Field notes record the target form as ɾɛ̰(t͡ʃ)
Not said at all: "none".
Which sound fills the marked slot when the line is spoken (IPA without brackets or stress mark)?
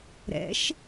ʃ